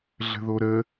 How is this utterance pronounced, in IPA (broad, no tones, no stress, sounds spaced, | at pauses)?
ɮ ə̤ ð o ɾ ə